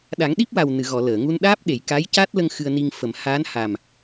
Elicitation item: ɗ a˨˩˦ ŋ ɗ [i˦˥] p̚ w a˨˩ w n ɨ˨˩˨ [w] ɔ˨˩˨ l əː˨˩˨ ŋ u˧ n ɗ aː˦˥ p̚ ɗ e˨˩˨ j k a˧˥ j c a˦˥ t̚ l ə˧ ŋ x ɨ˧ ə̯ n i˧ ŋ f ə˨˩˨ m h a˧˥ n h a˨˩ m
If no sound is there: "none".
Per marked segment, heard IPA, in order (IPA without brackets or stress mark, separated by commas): i˦˥, ɣ